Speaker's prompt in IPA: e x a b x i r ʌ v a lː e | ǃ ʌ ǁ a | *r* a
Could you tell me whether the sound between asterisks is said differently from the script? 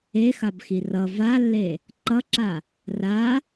no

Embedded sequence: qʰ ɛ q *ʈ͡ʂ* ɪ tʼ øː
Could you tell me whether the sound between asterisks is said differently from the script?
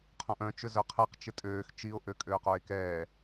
yes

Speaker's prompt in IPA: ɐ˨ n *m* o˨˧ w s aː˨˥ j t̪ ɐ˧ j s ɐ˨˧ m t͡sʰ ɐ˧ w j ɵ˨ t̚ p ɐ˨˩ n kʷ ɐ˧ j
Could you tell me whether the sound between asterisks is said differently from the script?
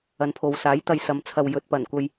yes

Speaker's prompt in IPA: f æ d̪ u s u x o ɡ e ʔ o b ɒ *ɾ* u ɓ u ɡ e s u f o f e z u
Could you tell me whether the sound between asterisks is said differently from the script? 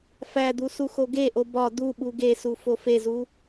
yes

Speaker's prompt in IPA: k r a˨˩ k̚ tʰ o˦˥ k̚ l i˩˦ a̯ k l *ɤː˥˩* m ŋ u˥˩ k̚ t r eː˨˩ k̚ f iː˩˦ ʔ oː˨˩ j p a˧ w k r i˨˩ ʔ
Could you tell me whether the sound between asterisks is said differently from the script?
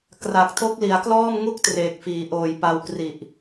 yes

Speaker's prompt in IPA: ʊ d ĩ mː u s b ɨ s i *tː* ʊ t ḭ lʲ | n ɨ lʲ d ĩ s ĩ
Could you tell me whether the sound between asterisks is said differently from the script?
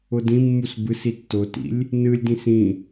no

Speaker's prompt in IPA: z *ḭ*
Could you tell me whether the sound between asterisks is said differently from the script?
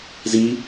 yes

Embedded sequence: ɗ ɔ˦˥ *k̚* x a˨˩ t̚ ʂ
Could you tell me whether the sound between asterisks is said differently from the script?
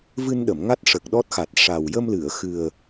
yes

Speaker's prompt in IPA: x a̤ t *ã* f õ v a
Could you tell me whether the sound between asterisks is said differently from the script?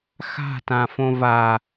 no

